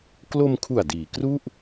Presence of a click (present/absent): absent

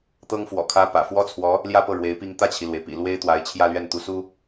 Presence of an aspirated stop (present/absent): present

